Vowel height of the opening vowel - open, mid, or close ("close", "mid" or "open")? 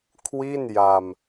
close